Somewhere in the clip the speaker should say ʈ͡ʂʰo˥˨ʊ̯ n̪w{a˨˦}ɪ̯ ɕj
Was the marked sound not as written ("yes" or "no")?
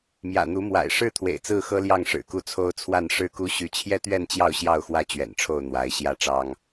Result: no